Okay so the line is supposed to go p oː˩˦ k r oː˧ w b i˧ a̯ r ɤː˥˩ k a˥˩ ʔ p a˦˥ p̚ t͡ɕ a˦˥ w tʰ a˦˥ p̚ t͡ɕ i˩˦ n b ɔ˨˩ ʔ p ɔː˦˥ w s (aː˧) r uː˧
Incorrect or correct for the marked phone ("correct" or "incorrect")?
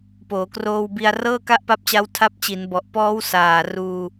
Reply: incorrect